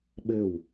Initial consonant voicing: voiced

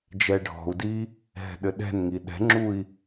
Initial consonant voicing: voiced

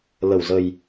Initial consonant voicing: voiced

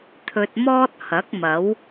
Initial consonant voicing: voiceless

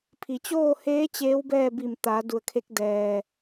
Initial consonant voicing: voiceless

